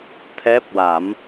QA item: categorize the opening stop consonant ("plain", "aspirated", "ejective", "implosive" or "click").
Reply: aspirated